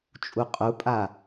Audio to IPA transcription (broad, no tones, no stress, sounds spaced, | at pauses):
t͡ʃʼ u qʼ u pʼ a